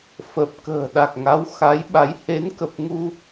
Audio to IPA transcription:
f ə˨˩ p̚ k ə̤ː˨˩ ɗ a˨˩ k̚ ŋ a˨˦ w x a˨˦ j ɓ a˨˦ j h e˨˦ n k ə˨˩ p̚ ŋ u˧

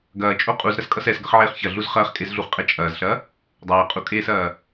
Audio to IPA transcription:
ɡ ɐː t͡ʃʼ o qʼ u z ɾ ɐ s kʼ ʌ s ɛ s ɡ ʌ χ ʕ eː χ ç ɐ ɮ u z χ ɐː χ kʼ e z ɮ u χ qʼ ɛ t͡ʃʼ ɐː z ɬ ɐ | dˤ ɐː qʼ u kʼ eː s ɐː

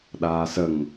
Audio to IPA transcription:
ɗ aː s ə ŋ

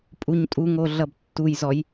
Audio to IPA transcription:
pʼ u ɲ tʼ u ŋ o ɮ ʌ b tː u j z ɔ j

